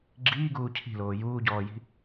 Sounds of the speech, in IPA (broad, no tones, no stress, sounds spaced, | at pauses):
ɡ͡ǁ iː ɡ uː cʰ i̤ l oː j uː ɟ ɔː j i̤